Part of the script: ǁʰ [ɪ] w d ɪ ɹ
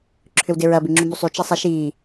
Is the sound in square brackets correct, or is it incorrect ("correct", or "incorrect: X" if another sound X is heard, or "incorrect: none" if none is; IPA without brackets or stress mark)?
incorrect: ʏ